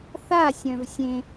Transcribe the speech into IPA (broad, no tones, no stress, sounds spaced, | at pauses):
θ a sʲ œ̃ v sʲ ẽ